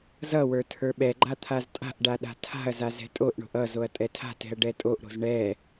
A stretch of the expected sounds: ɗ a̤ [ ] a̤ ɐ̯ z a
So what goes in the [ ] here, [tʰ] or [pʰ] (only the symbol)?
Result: tʰ